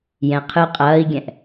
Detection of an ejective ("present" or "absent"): present